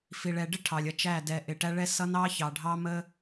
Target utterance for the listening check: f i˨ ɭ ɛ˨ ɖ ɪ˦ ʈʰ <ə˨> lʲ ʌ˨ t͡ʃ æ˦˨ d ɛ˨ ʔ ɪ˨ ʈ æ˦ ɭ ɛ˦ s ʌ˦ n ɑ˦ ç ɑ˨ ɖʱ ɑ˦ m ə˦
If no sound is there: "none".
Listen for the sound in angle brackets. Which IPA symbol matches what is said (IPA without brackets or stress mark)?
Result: ɑ˨